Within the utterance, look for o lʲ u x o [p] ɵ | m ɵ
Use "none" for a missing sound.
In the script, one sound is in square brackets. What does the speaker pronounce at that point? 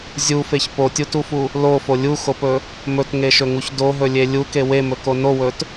p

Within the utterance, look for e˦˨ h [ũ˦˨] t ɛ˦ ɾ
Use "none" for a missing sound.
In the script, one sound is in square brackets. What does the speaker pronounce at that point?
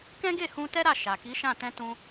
ũ˧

